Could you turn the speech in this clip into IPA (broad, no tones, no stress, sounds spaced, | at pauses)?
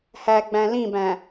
h æ ɡ͡b æ̃ l ĩ b æ̃